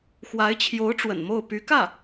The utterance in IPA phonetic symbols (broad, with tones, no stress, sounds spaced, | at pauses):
x w a˧˥ ɪ̯ t͡ɕʰ j o˧˥ ʊ̯ ʈ͡ʂ w ə̰˨˩ n m o˥˩ ʊ̯ p y˧˥ k ä˥˩